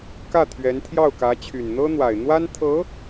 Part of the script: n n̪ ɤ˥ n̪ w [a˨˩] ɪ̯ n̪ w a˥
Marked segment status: correct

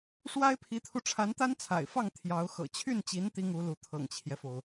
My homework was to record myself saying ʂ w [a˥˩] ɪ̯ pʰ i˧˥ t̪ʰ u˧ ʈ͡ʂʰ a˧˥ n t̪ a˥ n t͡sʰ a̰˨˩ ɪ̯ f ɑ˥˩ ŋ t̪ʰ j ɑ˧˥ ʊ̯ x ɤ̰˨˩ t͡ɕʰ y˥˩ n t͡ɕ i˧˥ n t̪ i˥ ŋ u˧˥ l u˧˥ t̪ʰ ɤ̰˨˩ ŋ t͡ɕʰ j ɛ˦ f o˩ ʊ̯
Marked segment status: incorrect: a˥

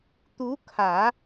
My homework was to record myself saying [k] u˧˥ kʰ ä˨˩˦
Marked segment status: incorrect: t̪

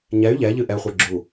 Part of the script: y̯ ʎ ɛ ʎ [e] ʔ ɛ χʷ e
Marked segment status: incorrect: ɨ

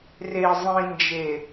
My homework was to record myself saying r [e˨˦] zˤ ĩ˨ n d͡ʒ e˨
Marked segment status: incorrect: e˨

